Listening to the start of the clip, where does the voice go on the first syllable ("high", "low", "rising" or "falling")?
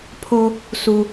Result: low